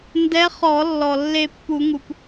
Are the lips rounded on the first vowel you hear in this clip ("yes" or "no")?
no